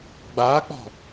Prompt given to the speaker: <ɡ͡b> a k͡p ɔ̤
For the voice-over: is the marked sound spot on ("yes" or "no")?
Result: yes